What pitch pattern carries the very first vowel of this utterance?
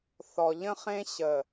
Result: low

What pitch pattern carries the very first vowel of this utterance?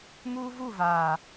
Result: high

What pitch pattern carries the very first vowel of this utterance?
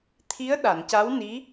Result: rising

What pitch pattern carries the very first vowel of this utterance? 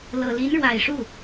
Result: low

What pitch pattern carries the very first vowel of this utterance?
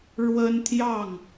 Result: high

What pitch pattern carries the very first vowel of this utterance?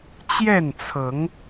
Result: falling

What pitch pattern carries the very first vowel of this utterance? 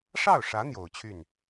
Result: falling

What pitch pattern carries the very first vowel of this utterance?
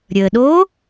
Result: low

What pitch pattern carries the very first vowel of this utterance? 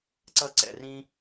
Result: high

